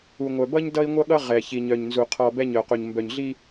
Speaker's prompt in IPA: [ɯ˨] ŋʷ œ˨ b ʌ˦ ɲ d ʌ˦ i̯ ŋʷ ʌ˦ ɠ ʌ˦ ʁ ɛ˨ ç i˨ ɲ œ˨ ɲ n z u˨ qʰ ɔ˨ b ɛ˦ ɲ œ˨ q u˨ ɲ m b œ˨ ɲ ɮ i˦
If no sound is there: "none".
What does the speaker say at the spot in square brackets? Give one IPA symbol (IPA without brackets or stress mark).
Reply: u˨